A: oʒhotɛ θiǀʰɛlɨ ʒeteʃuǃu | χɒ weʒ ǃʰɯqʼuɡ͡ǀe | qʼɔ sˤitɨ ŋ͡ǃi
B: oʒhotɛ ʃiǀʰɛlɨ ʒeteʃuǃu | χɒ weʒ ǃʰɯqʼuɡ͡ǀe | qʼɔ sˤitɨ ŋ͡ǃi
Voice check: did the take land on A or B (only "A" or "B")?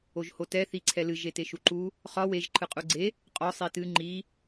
A